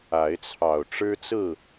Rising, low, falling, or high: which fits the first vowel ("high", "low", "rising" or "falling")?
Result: rising